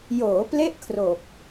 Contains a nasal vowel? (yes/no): no